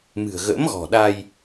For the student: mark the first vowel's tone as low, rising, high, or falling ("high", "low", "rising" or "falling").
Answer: low